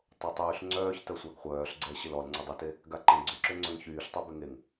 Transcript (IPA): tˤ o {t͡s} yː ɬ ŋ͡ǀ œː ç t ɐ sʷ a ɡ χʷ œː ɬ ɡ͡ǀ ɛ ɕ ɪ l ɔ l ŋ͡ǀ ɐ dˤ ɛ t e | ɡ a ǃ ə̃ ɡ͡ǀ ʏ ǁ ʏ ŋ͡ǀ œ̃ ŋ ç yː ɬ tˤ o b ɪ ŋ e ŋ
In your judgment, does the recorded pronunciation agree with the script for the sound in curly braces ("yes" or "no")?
no